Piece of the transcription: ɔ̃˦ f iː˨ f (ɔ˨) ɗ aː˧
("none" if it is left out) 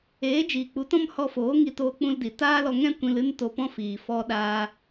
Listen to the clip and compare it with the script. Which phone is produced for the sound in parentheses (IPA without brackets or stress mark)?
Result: ɔ˧